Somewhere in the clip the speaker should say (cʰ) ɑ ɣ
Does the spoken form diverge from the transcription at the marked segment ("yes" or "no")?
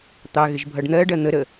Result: yes